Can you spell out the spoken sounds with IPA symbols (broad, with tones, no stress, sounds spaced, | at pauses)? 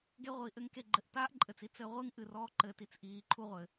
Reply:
ɡ e˧ ʁʷ iː˨ ʔ ɘ˧ ŋ k e˨ ɡ͡ǃ ɘ˨ ʔ t aː˦ ʔ ǃʼ ɘ˨ t͡s i˧ t͡s ɘ˧ ʁʷ ɨ˦ ŋ ʔ ɨ˨ r ɔː˧ ǃ ɘ˨ t i˧ t͡s ʔ iː˨ ǃʰ u˧ ʁʷ ɘ˨